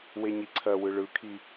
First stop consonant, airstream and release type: click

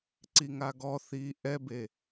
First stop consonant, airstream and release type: click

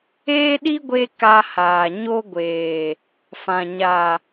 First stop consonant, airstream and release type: implosive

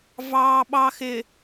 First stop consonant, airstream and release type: implosive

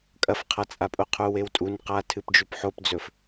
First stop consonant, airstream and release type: ejective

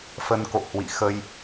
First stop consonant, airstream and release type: plain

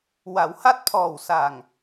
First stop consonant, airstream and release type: plain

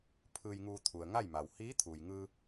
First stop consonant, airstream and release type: aspirated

